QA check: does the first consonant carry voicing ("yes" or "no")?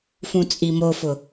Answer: no